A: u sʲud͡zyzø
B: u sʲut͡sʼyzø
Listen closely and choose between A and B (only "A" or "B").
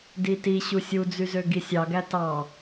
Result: A